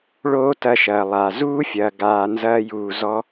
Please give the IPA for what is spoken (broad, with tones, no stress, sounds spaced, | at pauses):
ɭ oː˦ t ɐ˧ ʃ ɐː˨ lˠ a˨ z uː˦ fʲ ɐː˨ ɡ aː˨ n z ɐː˧ j uː˨ z ɔ˧